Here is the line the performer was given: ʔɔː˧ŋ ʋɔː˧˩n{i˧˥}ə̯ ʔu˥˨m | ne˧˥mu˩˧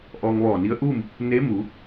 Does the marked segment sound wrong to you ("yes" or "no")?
no